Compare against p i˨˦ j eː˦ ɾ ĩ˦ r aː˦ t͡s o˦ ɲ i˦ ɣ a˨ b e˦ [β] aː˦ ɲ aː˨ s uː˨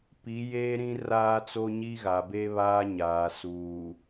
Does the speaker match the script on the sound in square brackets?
yes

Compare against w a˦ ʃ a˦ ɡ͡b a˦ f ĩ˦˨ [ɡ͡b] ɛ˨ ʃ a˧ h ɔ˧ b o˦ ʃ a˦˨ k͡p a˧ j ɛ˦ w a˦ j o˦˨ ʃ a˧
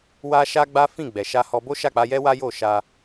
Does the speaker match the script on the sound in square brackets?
yes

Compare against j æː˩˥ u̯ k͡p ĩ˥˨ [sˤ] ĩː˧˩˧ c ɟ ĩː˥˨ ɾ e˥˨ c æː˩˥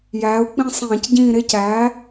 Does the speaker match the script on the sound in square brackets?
yes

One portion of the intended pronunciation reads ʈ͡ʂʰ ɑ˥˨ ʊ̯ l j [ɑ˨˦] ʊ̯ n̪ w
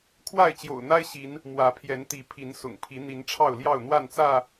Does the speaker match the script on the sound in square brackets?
no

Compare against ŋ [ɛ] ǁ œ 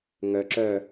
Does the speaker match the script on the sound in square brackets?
no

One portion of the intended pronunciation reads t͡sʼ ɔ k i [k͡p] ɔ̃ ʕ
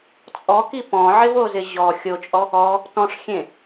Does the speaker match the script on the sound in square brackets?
no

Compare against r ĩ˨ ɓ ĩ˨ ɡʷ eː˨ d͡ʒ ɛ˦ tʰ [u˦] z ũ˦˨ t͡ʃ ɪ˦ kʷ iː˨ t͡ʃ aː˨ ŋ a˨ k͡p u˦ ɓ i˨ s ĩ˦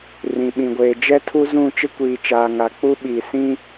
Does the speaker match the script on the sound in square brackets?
yes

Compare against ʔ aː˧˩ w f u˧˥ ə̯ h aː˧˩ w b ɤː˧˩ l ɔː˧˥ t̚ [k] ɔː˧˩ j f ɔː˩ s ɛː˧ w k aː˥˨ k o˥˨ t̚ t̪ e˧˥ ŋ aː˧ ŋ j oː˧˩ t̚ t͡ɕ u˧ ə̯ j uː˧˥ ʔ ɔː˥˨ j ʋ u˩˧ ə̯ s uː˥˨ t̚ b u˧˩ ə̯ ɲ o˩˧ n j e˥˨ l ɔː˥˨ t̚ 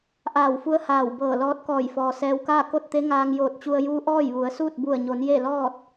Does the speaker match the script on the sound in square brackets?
yes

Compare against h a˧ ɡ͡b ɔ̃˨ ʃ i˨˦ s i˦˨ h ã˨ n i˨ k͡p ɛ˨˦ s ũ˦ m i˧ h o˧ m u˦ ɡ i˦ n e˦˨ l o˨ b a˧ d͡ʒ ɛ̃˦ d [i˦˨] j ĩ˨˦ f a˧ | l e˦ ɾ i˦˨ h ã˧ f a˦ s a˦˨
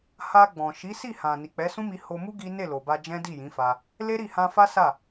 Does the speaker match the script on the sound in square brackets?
yes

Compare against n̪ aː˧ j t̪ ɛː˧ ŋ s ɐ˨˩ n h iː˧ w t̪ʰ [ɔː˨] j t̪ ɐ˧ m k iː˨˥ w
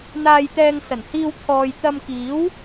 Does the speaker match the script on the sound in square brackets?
yes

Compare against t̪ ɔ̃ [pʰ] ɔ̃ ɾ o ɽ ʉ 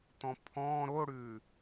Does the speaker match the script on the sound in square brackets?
yes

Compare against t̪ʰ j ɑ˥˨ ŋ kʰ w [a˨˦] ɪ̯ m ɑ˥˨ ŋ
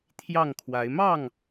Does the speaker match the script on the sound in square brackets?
yes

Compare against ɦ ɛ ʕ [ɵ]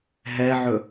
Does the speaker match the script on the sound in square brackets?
yes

